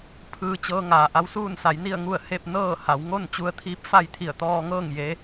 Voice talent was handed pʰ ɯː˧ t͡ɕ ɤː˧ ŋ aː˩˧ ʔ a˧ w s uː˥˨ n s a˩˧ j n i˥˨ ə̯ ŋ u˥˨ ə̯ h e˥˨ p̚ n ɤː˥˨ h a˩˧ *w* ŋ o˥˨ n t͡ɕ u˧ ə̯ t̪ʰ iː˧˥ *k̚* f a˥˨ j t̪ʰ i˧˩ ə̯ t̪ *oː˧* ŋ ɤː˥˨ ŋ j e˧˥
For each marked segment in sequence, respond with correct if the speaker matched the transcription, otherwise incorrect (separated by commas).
correct, incorrect, incorrect